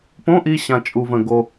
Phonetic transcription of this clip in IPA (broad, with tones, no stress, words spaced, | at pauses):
põ˧˥˧ʔi˧ ɕã˧t͡ʃʼu˧və̃˧ ɡo˧